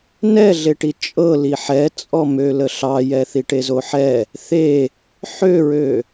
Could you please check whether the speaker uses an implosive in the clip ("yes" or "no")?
no